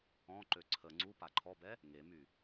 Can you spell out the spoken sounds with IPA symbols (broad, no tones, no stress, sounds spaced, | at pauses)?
ɔ̃ ǃ ø ǀʰ ə ŋ͡ǀ u p a ǃʰ ɔ b ɛ | ŋ e m y